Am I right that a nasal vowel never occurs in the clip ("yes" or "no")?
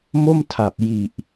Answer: yes